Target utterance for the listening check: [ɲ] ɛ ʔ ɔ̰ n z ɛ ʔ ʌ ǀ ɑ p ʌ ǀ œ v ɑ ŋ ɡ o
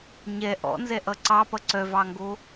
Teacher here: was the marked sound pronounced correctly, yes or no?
yes